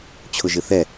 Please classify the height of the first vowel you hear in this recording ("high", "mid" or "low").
high